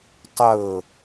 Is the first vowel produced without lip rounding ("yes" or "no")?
yes